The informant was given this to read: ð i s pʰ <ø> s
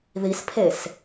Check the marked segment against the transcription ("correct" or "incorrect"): incorrect